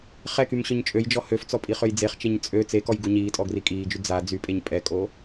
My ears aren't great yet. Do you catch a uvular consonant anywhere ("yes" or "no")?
yes